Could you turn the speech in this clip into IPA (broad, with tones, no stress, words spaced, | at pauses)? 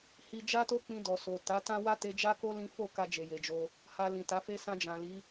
hi˧ d͡ʒa˦to˦ k͡pĩ˧dɔ˨so˨ ta˨˦tã˦ wa˦te˧d͡ʒa˦ko˦ lĩ˦ fo˦˨ka˧ d͡ʒe˨je˨d͡ʒo˧ | ha˧lĩ˨ta˨˦fe˦ sã˧d͡ʒã˨li˨˦